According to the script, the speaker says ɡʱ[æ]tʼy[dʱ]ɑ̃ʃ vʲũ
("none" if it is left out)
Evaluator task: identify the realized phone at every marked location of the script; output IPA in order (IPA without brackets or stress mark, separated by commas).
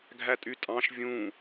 æ, tʼ